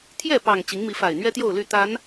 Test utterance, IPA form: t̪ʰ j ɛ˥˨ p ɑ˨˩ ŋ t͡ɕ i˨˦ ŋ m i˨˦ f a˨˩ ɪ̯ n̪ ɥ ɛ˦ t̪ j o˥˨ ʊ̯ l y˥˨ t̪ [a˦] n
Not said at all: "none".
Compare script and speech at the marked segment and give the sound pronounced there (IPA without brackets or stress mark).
a˨˦